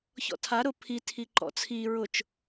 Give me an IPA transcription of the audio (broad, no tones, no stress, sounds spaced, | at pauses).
ç ɔ̰ tʰ a ɾ ʊ pʰ i tʰ i ǃ ɔ̰ t͡sʰ i ɹ ʊ t͡ʃ